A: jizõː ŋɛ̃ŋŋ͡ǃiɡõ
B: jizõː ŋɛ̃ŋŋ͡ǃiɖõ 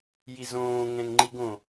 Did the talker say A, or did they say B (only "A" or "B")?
A